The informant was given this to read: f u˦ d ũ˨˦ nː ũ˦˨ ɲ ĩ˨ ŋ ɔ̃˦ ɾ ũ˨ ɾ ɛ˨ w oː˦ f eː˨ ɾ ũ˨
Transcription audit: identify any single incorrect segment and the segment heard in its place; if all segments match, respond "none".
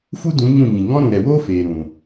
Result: nː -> ɲ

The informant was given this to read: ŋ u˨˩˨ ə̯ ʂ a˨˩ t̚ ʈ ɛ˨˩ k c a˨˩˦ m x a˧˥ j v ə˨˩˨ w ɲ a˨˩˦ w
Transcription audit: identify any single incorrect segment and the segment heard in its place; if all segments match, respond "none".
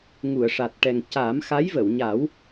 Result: k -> ŋ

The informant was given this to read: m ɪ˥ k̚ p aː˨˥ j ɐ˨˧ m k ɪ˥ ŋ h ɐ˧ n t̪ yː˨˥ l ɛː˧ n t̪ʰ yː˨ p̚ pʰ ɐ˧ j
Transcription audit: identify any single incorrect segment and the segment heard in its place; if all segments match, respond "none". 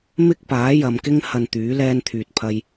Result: p̚ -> t̚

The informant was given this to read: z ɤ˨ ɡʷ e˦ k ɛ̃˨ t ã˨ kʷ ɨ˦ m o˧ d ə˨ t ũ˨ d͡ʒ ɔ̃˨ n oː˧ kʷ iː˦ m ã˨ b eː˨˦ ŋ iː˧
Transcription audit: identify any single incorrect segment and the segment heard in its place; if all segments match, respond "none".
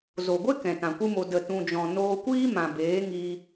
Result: ɤ˨ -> o˨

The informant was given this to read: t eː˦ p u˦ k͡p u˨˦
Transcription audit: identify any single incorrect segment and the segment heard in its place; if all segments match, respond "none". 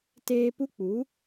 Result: none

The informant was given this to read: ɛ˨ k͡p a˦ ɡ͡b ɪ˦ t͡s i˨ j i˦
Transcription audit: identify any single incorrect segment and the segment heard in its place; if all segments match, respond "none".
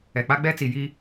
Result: ɪ˦ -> ɛ˦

